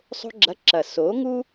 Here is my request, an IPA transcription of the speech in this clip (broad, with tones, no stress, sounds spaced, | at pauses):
sˤ o̤˥ ɡ͡ǁ ɐ˧˥˧ ǁ ɐ˨˩ s o˨˥ ŋ u˥